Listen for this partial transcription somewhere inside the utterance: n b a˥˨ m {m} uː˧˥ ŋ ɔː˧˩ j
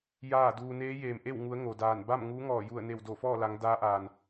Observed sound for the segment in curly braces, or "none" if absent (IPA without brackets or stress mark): ŋ